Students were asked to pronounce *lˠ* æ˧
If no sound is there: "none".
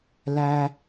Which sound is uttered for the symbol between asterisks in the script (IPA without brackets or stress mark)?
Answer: l